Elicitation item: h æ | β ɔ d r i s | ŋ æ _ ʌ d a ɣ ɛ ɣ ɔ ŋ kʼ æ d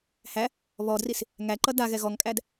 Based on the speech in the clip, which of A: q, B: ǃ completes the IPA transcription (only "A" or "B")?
B